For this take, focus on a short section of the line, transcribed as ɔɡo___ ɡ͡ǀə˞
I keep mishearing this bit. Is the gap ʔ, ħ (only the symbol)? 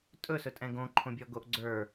ʔ